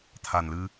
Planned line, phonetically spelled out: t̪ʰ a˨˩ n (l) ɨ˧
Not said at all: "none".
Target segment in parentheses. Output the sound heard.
l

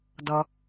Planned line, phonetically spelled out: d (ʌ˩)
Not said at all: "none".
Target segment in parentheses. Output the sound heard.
ʌ˩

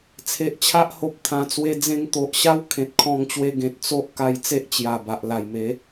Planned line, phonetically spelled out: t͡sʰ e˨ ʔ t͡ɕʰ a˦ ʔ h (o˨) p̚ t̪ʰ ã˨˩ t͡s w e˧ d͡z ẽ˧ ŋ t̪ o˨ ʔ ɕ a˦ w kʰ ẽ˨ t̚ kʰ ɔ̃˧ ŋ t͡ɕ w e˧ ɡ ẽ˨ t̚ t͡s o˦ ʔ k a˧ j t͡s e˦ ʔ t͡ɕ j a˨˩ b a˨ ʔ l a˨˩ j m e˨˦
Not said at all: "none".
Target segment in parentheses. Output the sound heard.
o˨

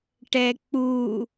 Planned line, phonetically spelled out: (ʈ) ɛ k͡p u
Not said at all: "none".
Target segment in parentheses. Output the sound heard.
ʈ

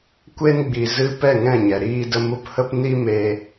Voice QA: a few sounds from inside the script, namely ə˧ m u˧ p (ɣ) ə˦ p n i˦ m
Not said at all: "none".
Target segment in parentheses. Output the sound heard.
h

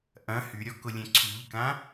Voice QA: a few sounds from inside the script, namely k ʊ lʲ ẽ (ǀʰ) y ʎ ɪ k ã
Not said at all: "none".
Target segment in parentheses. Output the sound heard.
ǀʰ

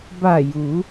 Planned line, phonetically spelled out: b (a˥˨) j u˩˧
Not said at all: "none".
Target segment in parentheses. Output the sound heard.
a˧˩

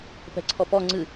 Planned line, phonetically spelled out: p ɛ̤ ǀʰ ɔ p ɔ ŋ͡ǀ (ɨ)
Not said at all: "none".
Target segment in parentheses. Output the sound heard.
ɨ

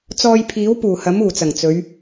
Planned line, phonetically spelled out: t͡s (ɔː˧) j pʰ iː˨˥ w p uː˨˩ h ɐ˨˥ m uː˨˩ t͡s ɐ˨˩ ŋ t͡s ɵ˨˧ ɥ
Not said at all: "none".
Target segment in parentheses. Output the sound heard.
ɔː˧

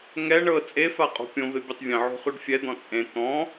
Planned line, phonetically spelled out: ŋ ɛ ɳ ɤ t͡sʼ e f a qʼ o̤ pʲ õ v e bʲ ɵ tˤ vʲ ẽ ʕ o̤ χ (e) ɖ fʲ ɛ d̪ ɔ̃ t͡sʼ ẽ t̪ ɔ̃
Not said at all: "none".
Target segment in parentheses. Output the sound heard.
y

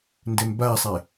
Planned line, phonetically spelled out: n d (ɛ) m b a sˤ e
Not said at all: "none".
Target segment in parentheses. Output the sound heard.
ɛ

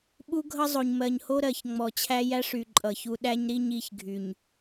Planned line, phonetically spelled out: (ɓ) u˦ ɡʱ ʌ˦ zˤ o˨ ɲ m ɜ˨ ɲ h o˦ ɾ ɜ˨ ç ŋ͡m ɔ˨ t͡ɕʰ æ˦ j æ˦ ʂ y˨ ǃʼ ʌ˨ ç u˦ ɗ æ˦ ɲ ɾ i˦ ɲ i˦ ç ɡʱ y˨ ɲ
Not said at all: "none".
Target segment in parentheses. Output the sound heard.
ɓ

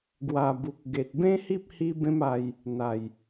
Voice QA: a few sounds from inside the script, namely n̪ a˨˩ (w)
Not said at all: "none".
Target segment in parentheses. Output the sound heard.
j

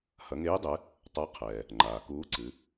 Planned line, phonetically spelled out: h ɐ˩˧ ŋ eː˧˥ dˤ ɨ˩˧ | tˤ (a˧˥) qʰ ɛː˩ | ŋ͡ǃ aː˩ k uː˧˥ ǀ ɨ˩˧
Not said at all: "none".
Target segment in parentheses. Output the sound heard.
a˧˥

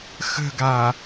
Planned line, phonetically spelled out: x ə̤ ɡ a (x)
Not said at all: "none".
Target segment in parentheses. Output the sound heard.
none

